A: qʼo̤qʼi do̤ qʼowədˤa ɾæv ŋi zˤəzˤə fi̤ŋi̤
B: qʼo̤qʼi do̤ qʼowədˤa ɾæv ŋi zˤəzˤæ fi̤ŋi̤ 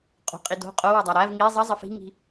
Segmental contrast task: A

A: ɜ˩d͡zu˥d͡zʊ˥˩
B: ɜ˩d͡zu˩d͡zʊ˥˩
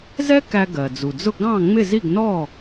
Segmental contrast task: B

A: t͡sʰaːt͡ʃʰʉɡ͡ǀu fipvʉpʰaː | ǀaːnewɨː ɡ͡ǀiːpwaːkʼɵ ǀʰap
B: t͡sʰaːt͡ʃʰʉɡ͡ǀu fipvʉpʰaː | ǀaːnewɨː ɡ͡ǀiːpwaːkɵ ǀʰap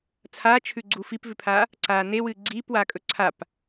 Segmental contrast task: A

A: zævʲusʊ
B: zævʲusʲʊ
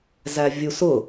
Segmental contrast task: A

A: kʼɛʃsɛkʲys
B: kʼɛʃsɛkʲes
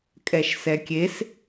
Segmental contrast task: B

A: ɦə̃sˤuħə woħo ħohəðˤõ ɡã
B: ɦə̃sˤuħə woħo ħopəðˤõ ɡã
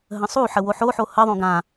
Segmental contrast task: A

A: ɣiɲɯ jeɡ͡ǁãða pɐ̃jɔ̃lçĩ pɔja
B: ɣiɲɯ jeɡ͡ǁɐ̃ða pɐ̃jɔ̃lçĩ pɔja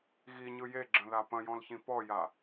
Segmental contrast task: B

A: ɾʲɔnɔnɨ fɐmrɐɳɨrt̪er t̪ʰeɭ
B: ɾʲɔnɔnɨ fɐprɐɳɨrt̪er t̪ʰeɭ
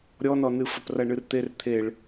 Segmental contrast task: B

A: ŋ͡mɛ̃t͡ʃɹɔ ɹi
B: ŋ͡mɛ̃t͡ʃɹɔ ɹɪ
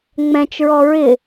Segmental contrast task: B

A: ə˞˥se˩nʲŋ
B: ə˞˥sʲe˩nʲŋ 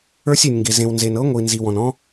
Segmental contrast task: B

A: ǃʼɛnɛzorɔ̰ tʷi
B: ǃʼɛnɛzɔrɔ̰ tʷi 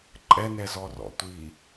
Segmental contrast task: B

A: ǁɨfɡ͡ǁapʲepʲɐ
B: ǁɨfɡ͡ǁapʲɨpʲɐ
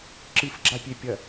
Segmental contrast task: A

